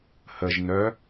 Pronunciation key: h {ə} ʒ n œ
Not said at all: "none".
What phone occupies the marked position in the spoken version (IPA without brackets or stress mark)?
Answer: ə